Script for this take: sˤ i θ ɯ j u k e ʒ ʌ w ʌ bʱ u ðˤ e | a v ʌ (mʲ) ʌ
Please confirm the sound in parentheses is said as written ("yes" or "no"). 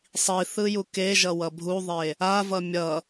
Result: yes